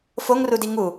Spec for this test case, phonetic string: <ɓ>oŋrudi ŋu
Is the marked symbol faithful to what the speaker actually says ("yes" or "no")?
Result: no